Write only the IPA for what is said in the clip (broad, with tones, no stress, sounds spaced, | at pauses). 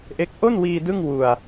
ʔ e˦˥ k̚ ʔ o˥˩ n w iː˧ d ɯ˥˩ ŋ w u˨˩ a̯